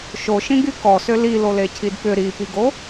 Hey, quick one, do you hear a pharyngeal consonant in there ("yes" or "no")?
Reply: no